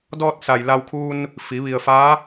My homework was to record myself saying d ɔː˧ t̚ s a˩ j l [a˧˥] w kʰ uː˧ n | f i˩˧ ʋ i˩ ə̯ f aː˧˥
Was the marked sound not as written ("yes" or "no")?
yes